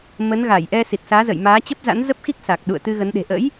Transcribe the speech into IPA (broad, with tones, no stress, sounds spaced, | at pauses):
m ə˨˦ n ɣ a˧˩ j ʔ ɛ˧ s i˨˩ t̚ s aː˨˦ z ə̰˧˨ j m aː˨˦ t͡ɕ ə˦˥ p̚ z a̰˧˥ n z ə˦˥ p̚ x i˦˥ k̚ s a˨˩ k̚ ɗ ṵ˧˨ ə̯ t̪ ɨ˧ ɣ ə˨˦ n ɗ e̤˨˩ ʔ ə̰˧˥ j